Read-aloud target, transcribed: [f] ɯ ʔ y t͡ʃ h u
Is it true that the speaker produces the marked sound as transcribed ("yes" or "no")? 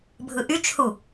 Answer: no